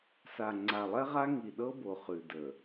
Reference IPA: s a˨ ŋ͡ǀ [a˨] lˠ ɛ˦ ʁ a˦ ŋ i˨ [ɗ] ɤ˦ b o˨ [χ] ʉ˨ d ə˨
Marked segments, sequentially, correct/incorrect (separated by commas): correct, correct, correct